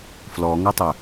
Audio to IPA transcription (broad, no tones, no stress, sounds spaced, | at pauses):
f l ɔ ŋ ʌ tˤ ə